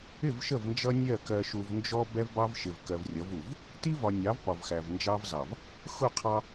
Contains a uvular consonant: yes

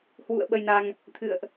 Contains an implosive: yes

